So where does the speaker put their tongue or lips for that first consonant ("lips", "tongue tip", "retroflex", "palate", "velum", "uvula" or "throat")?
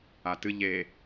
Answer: tongue tip